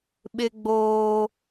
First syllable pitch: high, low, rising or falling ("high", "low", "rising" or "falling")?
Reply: high